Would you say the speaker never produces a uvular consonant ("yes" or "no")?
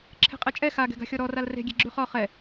no